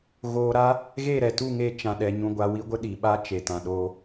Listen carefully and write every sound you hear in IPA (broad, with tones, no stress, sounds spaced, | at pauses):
ɣ oː˧ ɾ a˦ | ɣ e˦˨ ɾ ɛ˨ t u˦˨ ŋ e˧ t͡ʃ ã˧ ɗ ɛ˧ ɲ ũ˧ ɡʷ a˧ w i˦ ɡʷ ə˦ ɗ i˨ ɓ a˦ t͡ʃ e˨ t ã˨ ɗ oː˧